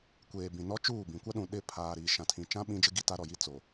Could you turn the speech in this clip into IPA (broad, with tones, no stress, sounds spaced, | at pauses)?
kʷ eː˨ b ĩ˨ n ɔ˦ t͡ʃ uː˦˨ b ĩ˨ kʷ a˦ ɗ ũ˨ ɗ ɪ˦˨ pʰ aː˨ ɾ iː˨ ʃ ã˨ tʰ ĩ˨ t͡ʃ ã˦ ɓ ĩ˦ d͡ʒ ɪ˦ ɡ i˦ t a˦ ɾ ɔ˨ j i˦ t͡s o˨